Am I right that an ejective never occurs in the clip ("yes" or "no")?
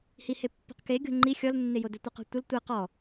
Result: yes